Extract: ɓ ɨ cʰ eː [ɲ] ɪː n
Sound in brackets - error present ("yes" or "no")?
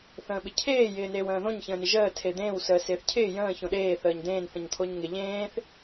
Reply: yes